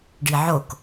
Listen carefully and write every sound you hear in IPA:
ɖ i ʕ o k

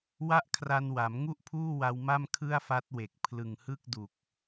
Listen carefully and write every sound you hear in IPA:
w a˥˩ ʔ kʰ r a˧ n w a˩˦ m ŋ u˥˩ ʔ pʰ uː˥˩ w a˧ w m a˥˩ m kʰ ɯ˥˩ a̯ f a˦˥ t̚ w e˨˩ k̚ pʰ l ɯ˨˩ ŋ h ɯ˥˩ k̚ d u˨˩ k̚

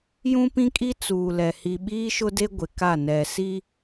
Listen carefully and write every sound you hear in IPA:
j ũ˦ p ĩ˦ kʼ i˦ t͡s uː˨ l ɛ˨ h i˨ ɓ iː˦ ʃ ʊ˦ d e˦ ɡʷ ɪ˨ k a˦˨ n ɛ˨ s i˦

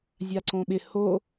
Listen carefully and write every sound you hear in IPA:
zʲ a ǀ õ ɓ ɪ h o

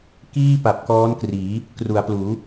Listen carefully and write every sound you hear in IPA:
k iː˥˩ p a˨˩ p̚ k ɔː˦˥ n k r iː˩˦ | k r u˩˦ a̯ p l uː˩˦

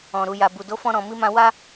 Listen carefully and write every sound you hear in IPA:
ɔ̃˨ ɾ u˨ j a˨ b u˨ d o˨˦ f ɔ̃˧ ɾ ɔ̃˨ m i˧ m ã˧ w a˦

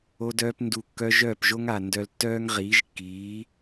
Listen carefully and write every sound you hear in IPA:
o˧ d œː˧ p n d u˨ kː œ˧ ʒ œː˦˨ p ʒ o˦ ŋ a˨ n d œ˧ l tː œː˦ ŋ ʁ iː˨˦ ʒ kː iː˨˦

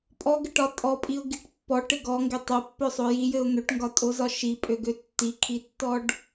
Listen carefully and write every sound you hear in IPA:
pʼ ɔ ɡ ɘ ʈ ɒ tʼ ɔ pʼ i ʊ̯ ɡ i ʈ pː ɔ ʈ ɘ ɡ ɔ ŋ ɡ e tˤ o pː ø sˤ o j i j ɘ ʊ̯ n̪ ø ʈ ŋ ɡ ɒ tʼ o z ɒ ʃ i pʼ ø ɡ ø tː i kʰ i tː ɔ ɖ

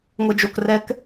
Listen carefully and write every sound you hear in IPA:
ŋʷ ɛ d͡ʒ o k r ɛ k

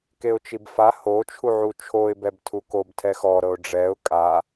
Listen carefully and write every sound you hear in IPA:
k e ʊ̯ t͡ʃ i b f a h o t͡ʃʰ u ʕ u t͡ʃʰ o ɪ̯ b ɛ b tʰ u k o b tʰ ɛ x ɔ ɾ ɤ ʊ̯ ɖ͡ʐ ɛ ʊ̯ kʼ a

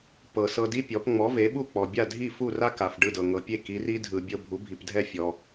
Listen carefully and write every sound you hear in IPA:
p ɤ˩ s ɤ˧ d i˥ pʲ ɔ˩˥ p ŋ͡m ɔ˩˥ v e˩˥ ɓ u˥˩ k͡p ɔ˩ bʲ a˥˩ dʱ i˥˩ f u˥˩ r a˥ k a˩ f ɖ ɯ˥˩ d ɤ˩ ŋ ɤ˩ pʲ e˥˩ k i˩˥ r i˥ dʱ ɯ˩ bʲ ɤ˧ bʱ u˩˥ bʱ i˩ p dʱ ɛ˥˩ fʲ ɔ˩

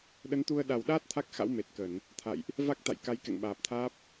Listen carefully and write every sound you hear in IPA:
ɗ ə˨˦ n t̪ u˧ ə̯ ɗ a˨˩ w ɗ aː˦˥ t̚ t̪ʰ a˦˥ k̚ x a̰˧˥ w m e˨˩ t̚ k ə˧˩˨ n | t̪ʰ a̰˧˨ j ʔ | v a˦˥ k̚ t̪ a̰˧˨ j k a˨˦ j k ɛ̰˧˨ ŋ ɓ aː˨˩ p̚ t̪ʰ aː˦˥ p̚

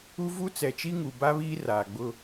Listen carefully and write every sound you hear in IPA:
u˦ v u˦ t͡s ɛ˨ t͡ʃ i˦ ŋ u˨ b a˦ β iː˦ r aː˨ ɡ͡b ʊ˦

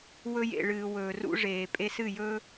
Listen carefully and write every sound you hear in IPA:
w ɵ˧ j ḛ˨ ɭ ɨː˨ w ɵː˨ r ṵ˧ ʐ eː˨ pʼ e˧ s ɨ˦˨ j ɵ˧

